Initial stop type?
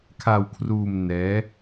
aspirated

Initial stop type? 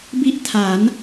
plain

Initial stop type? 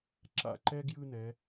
click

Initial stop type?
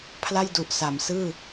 aspirated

